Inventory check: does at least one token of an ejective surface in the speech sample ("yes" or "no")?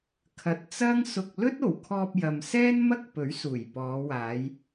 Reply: no